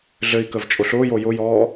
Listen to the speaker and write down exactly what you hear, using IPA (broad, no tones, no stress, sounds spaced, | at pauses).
ɮ ɘ i̯ k ə v t͡ʃʼ ʊ ɬ ʊː j o j ʊ j ɔː